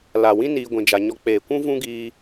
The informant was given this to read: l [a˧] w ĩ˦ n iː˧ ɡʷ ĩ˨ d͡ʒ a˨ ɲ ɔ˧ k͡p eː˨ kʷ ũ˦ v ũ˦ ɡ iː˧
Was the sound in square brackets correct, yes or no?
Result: no